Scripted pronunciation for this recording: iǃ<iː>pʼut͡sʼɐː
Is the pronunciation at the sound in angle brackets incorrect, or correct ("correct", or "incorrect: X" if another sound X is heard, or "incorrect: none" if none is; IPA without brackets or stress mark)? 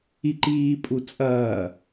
correct